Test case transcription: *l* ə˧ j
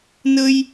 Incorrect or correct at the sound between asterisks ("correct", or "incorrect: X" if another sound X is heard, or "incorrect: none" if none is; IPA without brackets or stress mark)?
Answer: incorrect: n